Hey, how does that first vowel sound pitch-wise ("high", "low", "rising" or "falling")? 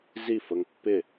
falling